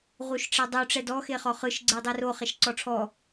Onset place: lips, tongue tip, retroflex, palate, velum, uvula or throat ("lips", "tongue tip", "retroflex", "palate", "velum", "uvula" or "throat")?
uvula